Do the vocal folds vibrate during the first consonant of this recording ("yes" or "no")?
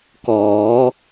no